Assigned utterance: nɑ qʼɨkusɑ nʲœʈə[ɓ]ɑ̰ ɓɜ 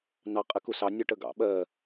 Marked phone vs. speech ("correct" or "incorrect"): incorrect